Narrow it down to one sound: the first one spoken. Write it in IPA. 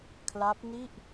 kʰ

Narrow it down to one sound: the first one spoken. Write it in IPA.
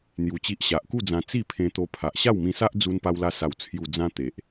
n̪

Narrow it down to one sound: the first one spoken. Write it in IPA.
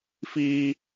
f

